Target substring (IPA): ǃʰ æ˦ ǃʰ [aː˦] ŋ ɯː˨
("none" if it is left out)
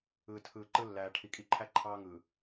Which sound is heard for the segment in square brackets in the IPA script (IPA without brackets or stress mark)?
ɑː˦